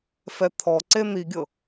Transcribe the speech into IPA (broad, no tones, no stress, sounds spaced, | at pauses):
f ɛ t̪ʰ ɔ ǀ e n̪ i ɡʲ ɤ